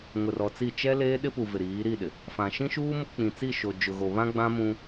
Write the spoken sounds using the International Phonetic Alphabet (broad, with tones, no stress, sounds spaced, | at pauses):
ŋ ʊ˨ r ɔ˨ t͡s i˦˨ t͡ʃ ɛ˦ l eː˦ ɗ ɪ˦ p u˨ v ɪ˨ ɾ iː˨˦ ɾ i˦˨ ɗ ɪ˨ | f ã˨ ʃ ĩ˦ ʃ uː˦ m ʊ˦ k͡p ĩ˨ t͡s i˦˨ ʃ o˨ d͡ʒ ʊ˨ ɣ o˨ β ã˦ ɡ͡b ã˦ m ũ˦